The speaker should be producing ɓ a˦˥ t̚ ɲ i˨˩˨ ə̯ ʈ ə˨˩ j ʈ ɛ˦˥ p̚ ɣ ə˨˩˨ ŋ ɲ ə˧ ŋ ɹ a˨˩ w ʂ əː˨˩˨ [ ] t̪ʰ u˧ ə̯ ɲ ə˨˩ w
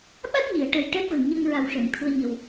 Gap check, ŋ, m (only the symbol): ŋ